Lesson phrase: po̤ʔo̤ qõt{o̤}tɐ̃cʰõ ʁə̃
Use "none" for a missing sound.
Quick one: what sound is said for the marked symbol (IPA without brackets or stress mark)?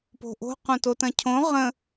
o